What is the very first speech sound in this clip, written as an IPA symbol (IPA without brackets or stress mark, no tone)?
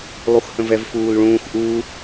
lˠ